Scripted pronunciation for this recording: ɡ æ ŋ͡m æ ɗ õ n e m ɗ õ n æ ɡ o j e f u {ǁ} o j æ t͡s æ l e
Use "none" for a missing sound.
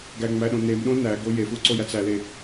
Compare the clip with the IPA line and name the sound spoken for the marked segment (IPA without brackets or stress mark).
ǀ